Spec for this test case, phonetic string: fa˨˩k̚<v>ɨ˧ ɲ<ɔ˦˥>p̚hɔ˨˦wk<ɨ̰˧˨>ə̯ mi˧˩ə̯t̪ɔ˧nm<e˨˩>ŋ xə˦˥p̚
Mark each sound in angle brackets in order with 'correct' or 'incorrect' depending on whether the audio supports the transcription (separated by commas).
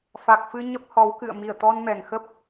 incorrect, incorrect, correct, incorrect